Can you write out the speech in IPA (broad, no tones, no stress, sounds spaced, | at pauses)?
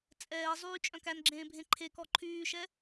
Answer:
t͡sʼ ɛː zˤ yː t͡ʃʼ œ̃ k æ n ɡ͡ǁ ẽː bʱ ẽ ǃʰ e k ɔ ǃʰ yː ʃ ɛ